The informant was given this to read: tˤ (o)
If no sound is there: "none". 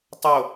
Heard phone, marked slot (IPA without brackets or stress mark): o